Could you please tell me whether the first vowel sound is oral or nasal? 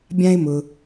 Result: nasal